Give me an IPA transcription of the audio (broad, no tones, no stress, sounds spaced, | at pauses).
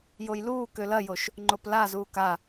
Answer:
j o j l uː k ø l ɐ j o ʃ | ŋ͡ǃ o p l a z uː k a